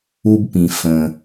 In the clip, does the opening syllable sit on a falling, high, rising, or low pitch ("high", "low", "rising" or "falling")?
high